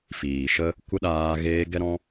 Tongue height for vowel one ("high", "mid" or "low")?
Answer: high